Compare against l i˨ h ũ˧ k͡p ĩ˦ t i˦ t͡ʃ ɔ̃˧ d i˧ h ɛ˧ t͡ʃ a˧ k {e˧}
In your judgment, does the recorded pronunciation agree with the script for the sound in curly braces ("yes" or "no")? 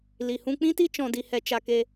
yes